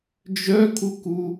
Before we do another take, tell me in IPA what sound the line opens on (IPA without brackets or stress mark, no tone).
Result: d͡ʒ